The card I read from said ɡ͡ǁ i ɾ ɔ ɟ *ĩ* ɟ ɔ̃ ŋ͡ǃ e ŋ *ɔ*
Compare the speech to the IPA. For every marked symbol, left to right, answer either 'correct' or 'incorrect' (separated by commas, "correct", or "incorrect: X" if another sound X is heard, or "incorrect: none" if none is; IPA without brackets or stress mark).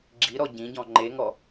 correct, correct